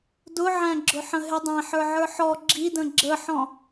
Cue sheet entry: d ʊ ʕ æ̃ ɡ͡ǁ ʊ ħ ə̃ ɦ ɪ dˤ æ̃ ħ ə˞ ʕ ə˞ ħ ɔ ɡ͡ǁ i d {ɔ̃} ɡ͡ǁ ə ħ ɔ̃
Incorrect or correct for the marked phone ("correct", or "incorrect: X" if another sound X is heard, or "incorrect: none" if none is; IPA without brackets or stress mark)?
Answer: incorrect: ə̃